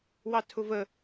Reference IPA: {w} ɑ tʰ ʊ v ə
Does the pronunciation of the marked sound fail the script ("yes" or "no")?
no